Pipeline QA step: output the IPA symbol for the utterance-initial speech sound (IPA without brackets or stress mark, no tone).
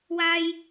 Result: w